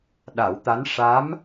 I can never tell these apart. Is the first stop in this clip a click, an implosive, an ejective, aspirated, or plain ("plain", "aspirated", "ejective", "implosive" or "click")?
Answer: implosive